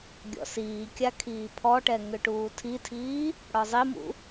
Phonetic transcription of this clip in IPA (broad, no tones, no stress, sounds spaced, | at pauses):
ɡʲ ɔ̰ s iː kʲ a kʰ iː pʰ ɔ ʈ ɛ ŋ ʏ ʈ uː tʰ i tʰ iː | ɽ ɒ zˤ i m ṵ